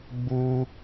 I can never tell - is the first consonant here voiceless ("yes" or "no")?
no